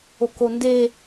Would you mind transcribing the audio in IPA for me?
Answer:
o k o n d e

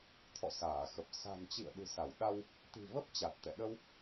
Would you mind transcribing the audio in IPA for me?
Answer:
t̪ʰ ɔ̰˧˨ s aː˧˩ x ə˨˩ p̚ s a̤˨˩ n t͡ɕ ḭ˧˨ ə̯ ɗ ɨ̤˨˩ s a˧˩ w ɗ a˧ w | t̪ i̤˨˩ v ə˦˥ p̚ t͡ɕ a˨˩ t̚ t̪ ɛ̰˧˨ ɗ ə˧ w

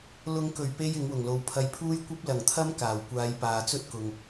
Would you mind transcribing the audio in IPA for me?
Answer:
l ʊ˨˧ ŋ k ɵ˨˩ ɥ p e˨ j ɪ˨˥ ŋ w ʊ˨˩ ŋ l o˨˧ w pʰ ɐ˧ j pʰ uː˥ j kʷ ɐ˥ p̚ l ɐ˨˩ ŋ t̪ʰ ɐ˥ m k aː˨˩ w kʷ aː˨˧ j p aː˨ t͡s ɵ˥ t̚ k ʊ˨ ŋ

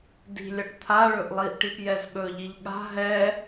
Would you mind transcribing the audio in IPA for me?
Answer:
d i̤ lʲ ʌ ʈ t̪ʰ a ɭ ɵ ʔ lˠ i ʔ ʈ i p j ɛ z ɠ ɵ ʎ i ʎ ɠ a̤ ɦ ɛ

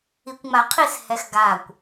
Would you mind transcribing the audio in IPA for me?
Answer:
i kʷ ŋ͡m a qʰ i s h ɛ x ɡ a kʷ

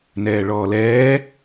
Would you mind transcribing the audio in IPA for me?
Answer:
n ɛː ɭ ɔː l ɛː

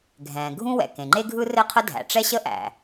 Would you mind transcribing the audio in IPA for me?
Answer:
ɡʱ ɛ̃ː˩ ɡʱ ũ˥ w ɛ̰˩ k ẽ˩ ŋ͡ǃ e˥ ɡʱ ɯ˥ r ɘ˥ qʰ ə˥ dʱ æ̰˩ ʈ͡ʂ ɛ˥ ɕ ə˥ ʔ æ̰˩

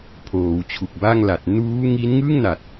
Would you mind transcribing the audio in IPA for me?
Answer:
pʰ oː˩˦ w t͡ɕʰ u˨˩ k̚ b a˥˩ ŋ l a˨˩ t̚ n uː˦˥ ŋ i˦˥ n ŋ ɯ˥˩ ŋ n a˨˩ t̚

